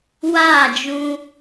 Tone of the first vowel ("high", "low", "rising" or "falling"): falling